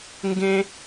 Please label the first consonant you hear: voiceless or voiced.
voiced